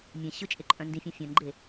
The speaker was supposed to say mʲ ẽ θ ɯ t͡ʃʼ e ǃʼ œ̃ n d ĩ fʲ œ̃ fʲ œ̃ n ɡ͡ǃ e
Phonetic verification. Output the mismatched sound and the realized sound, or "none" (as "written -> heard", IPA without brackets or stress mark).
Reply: θ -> ɕ